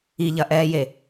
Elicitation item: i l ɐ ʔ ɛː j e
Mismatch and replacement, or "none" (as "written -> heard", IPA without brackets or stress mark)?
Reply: l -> ʎ